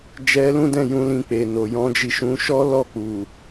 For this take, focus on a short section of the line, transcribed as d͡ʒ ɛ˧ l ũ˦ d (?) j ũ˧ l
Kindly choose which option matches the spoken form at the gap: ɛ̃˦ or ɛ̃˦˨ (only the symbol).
ɛ̃˦˨